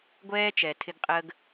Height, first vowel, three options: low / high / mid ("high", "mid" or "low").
mid